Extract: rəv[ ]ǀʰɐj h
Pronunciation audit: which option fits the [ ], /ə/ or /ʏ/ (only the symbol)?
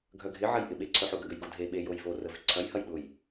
ʏ